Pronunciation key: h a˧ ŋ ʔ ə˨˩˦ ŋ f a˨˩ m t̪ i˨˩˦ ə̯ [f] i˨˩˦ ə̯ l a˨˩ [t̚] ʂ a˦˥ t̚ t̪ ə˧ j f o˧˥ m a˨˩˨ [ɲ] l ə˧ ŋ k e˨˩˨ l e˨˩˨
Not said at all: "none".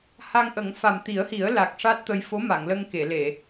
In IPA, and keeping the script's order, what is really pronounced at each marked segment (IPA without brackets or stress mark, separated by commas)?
h, k̚, ŋ